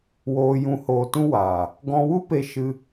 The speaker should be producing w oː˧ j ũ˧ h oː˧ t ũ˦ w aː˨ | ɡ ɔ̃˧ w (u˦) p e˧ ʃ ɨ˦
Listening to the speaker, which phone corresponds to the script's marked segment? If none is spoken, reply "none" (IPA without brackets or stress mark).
u˦